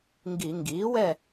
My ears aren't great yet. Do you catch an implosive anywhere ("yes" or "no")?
no